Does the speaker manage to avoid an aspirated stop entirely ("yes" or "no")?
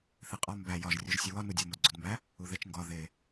yes